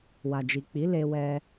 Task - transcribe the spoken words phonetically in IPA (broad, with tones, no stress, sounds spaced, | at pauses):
w a˨ d͡ʒ i˨ k͡p i˨˦ l e˧ w ɛ˧